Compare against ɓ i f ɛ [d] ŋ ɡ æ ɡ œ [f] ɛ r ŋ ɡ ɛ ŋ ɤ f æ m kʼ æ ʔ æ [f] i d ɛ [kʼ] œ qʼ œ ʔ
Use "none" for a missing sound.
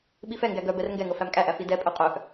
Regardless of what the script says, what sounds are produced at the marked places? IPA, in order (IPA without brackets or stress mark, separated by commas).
none, b, f, pʼ